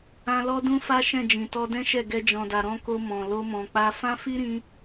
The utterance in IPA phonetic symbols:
ã˧ lɔ˦dũ˦fa˦ʃɛ̃˦˨ d͡ʒĩ˨tɔ˧dɛ̃˦ʃɛ˦˨ ɡɛ˧d͡ʒɔ̃˨da˨ ɾɔ̃˧ko˧ mɔ̃˨ lo˧mɔ̃˨k͡pa˧ fã˦fi˦ɾĩ˧

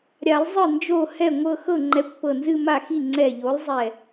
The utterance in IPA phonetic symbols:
ɾʲa˨˩˦lˠ zˤɨ˥˩nd͡ʒo˥˩hɛ˥˩ŋʷɤ˥˧ xɤ˥˩ŋ͡ǃɛ˨˥kʷ pɤ˧˩nzɨ˥˧ ma˥˩xi˥˩ ŋ͡ǀɛ˧˩ʎo˨˥lˠzˤɛ˧˩

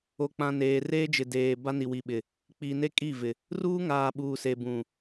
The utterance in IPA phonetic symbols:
o˨k͡pã˨ neː˨reː˦d͡ʒɪ˨deː˨ ba˦ni˨ wi˨ɓɪ˨ | k͡pi˨ne˦kʼi˦˨vɪ˨ | ruː˦ŋaː˨ ɓuː˨se˨bũ˨

